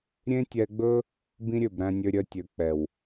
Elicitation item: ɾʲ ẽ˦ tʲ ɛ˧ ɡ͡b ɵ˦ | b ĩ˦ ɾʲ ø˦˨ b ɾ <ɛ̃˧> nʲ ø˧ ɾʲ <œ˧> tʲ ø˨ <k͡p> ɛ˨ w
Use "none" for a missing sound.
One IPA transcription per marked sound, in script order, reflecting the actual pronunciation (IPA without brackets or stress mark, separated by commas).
æ̃˧, œ˧, k͡p